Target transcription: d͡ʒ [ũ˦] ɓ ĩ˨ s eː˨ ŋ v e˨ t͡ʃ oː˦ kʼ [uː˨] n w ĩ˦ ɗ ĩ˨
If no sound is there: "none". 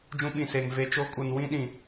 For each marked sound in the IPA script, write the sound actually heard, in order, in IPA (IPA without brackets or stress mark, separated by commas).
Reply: ũ˦, u˨